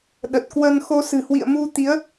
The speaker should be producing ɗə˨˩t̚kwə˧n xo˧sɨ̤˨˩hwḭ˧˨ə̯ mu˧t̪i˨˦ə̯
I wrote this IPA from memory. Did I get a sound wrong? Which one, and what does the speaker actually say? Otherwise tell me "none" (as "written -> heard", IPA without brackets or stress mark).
none